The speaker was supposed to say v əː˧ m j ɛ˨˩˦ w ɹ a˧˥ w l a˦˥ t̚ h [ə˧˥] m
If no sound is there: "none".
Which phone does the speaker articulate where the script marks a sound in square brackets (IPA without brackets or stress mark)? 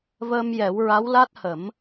ə˨˩˦